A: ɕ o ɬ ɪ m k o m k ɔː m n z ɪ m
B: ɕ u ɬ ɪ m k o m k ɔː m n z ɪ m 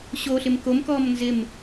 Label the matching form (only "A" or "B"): A